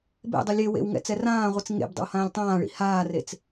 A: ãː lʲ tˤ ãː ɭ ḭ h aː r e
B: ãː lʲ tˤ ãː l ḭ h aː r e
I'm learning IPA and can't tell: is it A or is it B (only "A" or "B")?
A